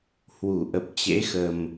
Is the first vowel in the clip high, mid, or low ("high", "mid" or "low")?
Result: high